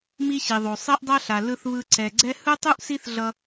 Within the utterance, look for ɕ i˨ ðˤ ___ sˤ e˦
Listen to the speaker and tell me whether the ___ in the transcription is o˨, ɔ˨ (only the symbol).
o˨